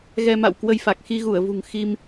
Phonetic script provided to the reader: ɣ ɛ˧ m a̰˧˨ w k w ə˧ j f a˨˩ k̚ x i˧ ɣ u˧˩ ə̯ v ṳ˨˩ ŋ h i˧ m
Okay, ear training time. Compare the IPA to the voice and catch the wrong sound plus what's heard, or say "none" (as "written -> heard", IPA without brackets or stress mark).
h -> x